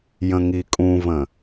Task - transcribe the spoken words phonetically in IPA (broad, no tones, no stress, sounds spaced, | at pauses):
j ə̃ ŋ i kʼ ũ v ə̃